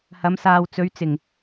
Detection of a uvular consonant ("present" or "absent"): absent